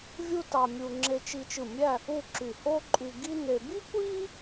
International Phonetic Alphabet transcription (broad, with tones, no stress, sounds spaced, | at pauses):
vʲ u˥ t ɑ˧ mʲ u˧ ŋ͡ǁ e˧ t͡ʃ i˧ t͡ʃ ɯ˧˩ mʲ æ˥˧ | u˥˧ ǁ y˧˩ h o˥ ǃʼ y˧ ɡ i˥ n e˧ b i˥ kʷ i˥